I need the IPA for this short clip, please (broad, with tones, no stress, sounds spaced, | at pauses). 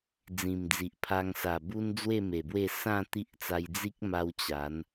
d͡z ĩ˨˩ m d͡z i˨ ʔ pʰ a˧ ŋ s a˨˩ b u˦ n d͡z w e˥˧ m e˨˩ b w e˥˧ s ã˥˧ t̪ i˦ ʔ t͡s a˧ j d͡z i˦ k̚ m a˧ w t͡ɕ a˨˦ n